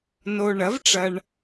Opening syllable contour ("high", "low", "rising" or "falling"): low